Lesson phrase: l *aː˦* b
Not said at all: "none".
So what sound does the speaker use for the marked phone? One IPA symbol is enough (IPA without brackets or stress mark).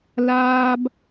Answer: aː˦